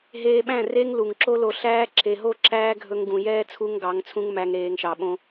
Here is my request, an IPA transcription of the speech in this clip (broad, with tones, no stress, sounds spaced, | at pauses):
ɦ eː˧ ɓ æ̃˦˨ r e˦ ŋ l u˨ ŋ ǁ o˦ l o˧ ɬ æː˦ ǁ e˨ ɦ o˦˨ ǁ æː˦ ɡʱ ɵ˧ ŋ ɡ ũ˨ j ɛː˦ t͡sʰ u˧ ŋ ɡ ɑ˨˦ ŋ t͡sʰ ũ˦ ŋ m æ˧ ŋ ɾ eː˨ ŋ ʃ ɑ˨ ɓ õ˧